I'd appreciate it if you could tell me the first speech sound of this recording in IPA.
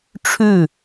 ʈ͡ʂʰ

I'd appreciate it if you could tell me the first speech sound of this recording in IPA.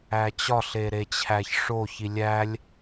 æ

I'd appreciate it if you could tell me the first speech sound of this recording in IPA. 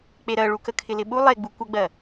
k͡p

